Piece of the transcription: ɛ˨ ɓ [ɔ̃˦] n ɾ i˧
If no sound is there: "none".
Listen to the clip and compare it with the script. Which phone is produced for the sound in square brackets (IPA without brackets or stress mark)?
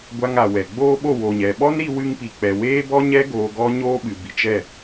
ɔ˦